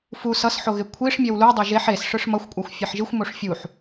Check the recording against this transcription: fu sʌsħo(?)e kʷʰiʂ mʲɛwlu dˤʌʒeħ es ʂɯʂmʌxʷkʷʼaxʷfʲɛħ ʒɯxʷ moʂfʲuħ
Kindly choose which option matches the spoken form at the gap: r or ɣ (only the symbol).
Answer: ɣ